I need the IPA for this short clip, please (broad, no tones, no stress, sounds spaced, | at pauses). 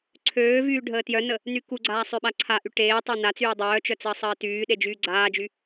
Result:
ǀʰ øː v yː ɖʱ əː t j œ n ə | n y k u ɡ͡ǀ aː sˤ ø ɓ a ǀʰ a ʔ y ʈ eː tˤ œ n a t͡s yː dˤ œː t͡ʃ œ t͡s əː sˤ əː t yː ɗ e d͡ʒ yː ɡ͡ǀ aː d͡ʒ y